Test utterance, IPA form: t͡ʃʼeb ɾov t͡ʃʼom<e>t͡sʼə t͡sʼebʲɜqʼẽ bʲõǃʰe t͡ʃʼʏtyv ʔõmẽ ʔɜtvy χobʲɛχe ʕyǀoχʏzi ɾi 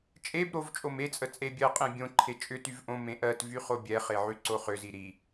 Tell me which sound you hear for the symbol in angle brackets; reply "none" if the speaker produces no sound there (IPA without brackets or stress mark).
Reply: e